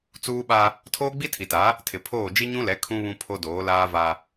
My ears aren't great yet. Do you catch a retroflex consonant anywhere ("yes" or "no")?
no